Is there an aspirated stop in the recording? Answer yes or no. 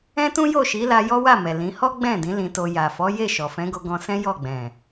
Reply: no